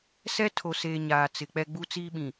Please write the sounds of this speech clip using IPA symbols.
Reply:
sɛ˦tʰo˨seː˨ ɲaː˨t͡sɪ˨k͡pɛ˦ ɡ͡bu˦t͡siː˦ɓĩ˨

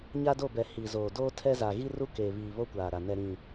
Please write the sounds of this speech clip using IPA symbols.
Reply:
ɲa˦do˦˨bɛ˨ hiː˨zoː˨ doː˦tʰɛ˦ za˨ ɣi˦ru˦keː˨βiː˨ βo˦kʷaː˨ɾa˨ nɛ˨ɾĩ˨

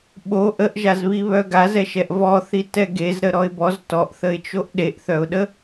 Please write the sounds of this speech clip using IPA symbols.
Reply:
ɓo ʔəʔʒazβiβœ ɡazɛʃɛʔ vɔθitɛ ɡezɾəɾɔɪ̯ bɔz tɔʔθəɪ̯t͡ʃoʔ ɗeʔθœʊ̯ɗə

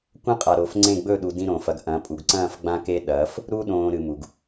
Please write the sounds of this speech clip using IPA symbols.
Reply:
kʷɐ̃˦qʼa˨ɾo˨fŋ͡ǀẽ˦˨ ɡ͡bɵ˦˨ɗu˨ dĩ˦ɾõː˨fɐ˦ɡ ʔɐ̃˨˦pʼu˨ɡ ǀɐ̃ː˦˨f ɡ͡bã˦ke˦ ɗɐː˨˦f | ɾu˦ ɗõː˨ ɾɨ˨mu˨ɡ

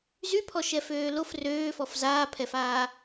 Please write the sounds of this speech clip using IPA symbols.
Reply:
zypʰɔʃɛføː lof røːfɔf zaːpʰɛfaː

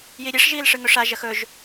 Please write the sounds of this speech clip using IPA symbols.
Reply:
jiɾʲeʂ ʒiːlʂɨŋɵʂa ʒɐxɵʒ

